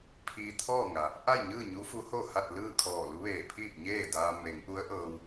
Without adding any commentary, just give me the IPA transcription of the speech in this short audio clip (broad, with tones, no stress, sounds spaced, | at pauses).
pʰ iː˧ t̪ʰ ɔː˥˨ ŋ a˩ | ʔ a˥˨ j ɲ ɯː˥˨ ɲ u˧˥ f u˧˥ h o˥˨ h a˥˨ t̚ l ɯː˥˨ kʰ ɔː˧˩ l u˧˥ ʋ eː˧˩ pʰ iː˥˨ p̚ ɲ eː˥˨ d aː˧ m e˩˧ ŋ ʔ u˧˥ ə̯ ʔ ɤː˧ w